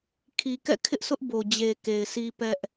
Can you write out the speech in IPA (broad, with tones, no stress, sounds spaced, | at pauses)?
kʰ i˨ k ɛ̰˦˨ kʰ ɪ˦ ʔ sʰ ʊ˦ ʔ b o˨ d͡ʑ e˨ k e˨ ɪ̯ s i˦ p ɛ˦ ʔ